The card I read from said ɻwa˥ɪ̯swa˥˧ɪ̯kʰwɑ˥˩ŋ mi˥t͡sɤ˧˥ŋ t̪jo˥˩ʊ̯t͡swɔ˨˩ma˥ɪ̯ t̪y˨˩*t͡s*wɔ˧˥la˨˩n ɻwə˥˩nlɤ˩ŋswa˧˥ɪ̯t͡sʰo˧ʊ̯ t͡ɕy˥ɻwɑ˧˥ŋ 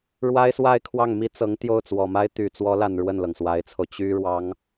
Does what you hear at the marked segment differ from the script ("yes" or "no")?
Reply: no